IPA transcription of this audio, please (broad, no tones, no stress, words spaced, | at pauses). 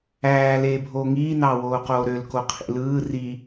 æː leːbʱoːŋiː nɑwoːqoːɾøl koqʰḭlɯː ri